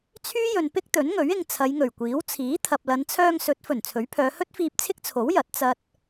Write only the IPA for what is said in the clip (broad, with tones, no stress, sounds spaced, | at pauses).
t͡sʰ yː˥ j ɵ˨ n p ɪ˥ k̚ t̪ ɵ˨˥ n ŋ ɵ˨˥ ɥ ɪ˧ ŋ t͡sʰ ɐ˨˧ j ŋ ɵ˨˩ ɥ kʷ iː˨˥ w t͡sʰ iː˨˥ t̪ʰ ɐ˨ p̚ l ɐ˨˧ n t͡sʰ œː˧ ŋ s ɵ˨˥ t̚ f ɵ˨˩ n t͡sʰ ɵ˨˥ ɥ pʰ œː˨˧ h ɵ˥ t̚ f iː˧ p̚ t͡sʰ ɪ˥ k̚ t͡sʰ o˨˥ w j ɐ˨˥ t̚ t͡s ɐ˧ t̚